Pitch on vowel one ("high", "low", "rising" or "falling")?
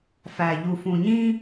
low